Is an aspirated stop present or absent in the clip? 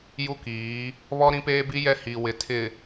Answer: present